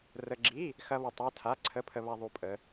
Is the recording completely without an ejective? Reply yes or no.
no